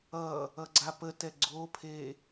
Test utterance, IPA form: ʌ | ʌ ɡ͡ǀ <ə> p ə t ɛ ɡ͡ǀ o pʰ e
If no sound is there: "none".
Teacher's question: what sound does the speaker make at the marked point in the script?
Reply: a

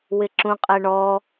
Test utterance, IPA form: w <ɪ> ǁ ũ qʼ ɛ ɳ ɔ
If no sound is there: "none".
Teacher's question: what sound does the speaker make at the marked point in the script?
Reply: ɪ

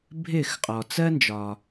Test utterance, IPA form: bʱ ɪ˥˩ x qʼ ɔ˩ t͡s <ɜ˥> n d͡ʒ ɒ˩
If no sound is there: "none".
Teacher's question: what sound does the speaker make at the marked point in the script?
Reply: ɜ˥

